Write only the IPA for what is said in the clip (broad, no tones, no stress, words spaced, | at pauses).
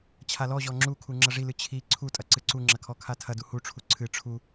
t͡ɕʰalɔʑɔ ŋ͡ǁukʰu ŋ͡ǁɐʐilɨ t͡ɕʰi ǀʰutʼɐ ǀɨǀuŋ͡ǁɐ kʰɔkʰatʰɐdu huʈ͡ʂʰu ǀʰɨ ʈ͡ʂʰu